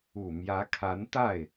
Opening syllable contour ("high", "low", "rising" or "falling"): low